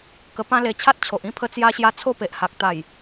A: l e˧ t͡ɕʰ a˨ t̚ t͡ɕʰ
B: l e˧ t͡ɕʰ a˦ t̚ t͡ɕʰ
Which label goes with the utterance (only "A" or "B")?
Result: B